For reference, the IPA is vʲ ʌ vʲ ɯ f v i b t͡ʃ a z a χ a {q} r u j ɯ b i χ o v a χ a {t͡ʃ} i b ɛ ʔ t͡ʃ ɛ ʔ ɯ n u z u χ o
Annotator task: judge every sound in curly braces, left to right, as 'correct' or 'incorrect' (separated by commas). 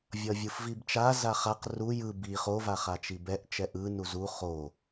correct, correct